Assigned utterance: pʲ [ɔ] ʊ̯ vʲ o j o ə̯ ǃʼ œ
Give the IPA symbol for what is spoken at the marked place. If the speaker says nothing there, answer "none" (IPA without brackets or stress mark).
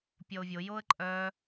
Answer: ɔ